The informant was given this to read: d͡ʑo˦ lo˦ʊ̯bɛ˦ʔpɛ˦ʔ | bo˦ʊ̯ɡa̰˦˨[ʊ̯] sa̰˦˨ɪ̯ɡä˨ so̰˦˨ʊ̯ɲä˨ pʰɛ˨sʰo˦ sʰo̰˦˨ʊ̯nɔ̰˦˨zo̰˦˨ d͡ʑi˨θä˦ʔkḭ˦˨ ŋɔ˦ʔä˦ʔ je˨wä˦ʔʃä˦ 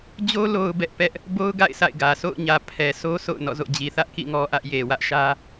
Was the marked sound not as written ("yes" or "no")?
yes